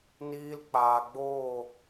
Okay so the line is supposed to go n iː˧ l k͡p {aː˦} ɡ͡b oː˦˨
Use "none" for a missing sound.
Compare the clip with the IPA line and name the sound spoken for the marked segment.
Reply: aː˨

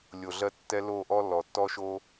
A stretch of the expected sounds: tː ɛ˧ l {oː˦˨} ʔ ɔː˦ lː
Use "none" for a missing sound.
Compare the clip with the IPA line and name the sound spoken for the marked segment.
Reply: oː˦˨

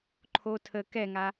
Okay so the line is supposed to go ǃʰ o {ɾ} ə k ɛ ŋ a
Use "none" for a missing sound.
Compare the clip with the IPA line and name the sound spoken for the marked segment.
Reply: tʰ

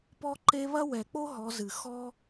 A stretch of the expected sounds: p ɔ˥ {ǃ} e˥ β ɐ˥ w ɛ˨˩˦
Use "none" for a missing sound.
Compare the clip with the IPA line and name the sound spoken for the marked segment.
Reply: ǃ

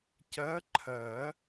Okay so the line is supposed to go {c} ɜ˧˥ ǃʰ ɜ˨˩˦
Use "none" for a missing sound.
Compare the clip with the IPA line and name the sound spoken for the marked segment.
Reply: c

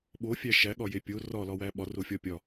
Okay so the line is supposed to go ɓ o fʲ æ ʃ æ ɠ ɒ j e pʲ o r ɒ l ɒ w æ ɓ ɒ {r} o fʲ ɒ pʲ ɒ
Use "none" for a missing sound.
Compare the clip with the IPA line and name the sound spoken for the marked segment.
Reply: r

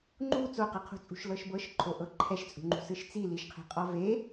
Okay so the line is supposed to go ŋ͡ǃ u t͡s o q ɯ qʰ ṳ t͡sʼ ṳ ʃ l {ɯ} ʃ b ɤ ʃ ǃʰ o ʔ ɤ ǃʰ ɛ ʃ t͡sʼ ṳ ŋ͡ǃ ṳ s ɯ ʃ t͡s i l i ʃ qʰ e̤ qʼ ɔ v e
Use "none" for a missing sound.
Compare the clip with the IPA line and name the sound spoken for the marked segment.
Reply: ɤ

